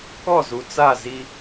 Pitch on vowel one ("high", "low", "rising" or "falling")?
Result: falling